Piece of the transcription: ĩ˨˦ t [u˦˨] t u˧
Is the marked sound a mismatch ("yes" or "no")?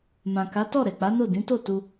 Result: yes